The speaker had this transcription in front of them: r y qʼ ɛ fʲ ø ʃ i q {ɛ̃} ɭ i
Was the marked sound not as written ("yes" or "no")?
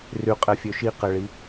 yes